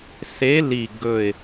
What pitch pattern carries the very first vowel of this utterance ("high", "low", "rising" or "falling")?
rising